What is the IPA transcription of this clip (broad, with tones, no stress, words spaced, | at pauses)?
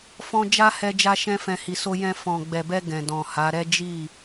fɔ̃˧ d͡ʒa˦hɛ˧ d͡ʒa˧ʃɛ̃˧fɛ̃˨ hi˨so˧jɛ̃˧ fɔ̃˨ɡ͡bɛ˨bɛ˧ ɡɛ̃˨dɔ̃˨ha˨˦ ɾɛ˦d͡ʒi˦˨